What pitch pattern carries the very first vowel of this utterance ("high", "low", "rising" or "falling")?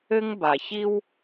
high